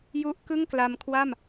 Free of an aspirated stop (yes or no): no